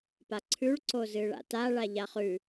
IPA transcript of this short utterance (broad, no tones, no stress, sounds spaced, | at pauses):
p a ǀʰ ʉ ɭ ǀ o z ɨ ɭ a̰ t a ɭ a ʎ a χ ʉ